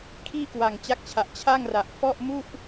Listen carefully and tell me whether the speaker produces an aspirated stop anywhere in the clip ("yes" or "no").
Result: yes